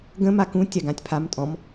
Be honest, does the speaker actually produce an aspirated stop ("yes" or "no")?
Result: yes